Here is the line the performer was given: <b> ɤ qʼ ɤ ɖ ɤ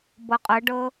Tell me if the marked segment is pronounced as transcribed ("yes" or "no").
yes